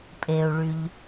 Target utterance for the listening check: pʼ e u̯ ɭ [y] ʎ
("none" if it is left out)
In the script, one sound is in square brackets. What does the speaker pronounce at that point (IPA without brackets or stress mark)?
y